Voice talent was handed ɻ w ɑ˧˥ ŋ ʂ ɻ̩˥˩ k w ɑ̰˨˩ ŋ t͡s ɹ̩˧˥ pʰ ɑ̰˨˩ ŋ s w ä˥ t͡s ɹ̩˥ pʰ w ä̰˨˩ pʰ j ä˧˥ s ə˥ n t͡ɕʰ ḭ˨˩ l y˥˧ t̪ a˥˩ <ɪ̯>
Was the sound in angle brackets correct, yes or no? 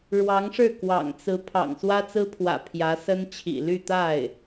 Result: yes